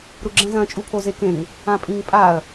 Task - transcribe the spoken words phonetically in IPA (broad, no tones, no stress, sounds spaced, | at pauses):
ɾ u ɡ͡ǁ ɛ̃ z ɐ̃ t͡ʃʼ u pʰ o z e k ẽ ŋ | ã pʼ ĩ ŋ pʼ a ɐ̯